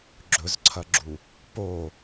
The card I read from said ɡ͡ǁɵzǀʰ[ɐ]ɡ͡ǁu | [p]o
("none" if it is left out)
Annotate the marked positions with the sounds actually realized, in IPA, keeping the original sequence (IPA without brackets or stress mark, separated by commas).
ɐ, p